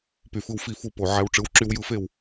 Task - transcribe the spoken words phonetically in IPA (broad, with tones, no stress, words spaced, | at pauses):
py˨fɯ˧wfi˦˨fu˦˨ po˨ ʕæ˧w ʈ͡ʂɯ˨˦wǁy˧wjɯ˧fe˦˨w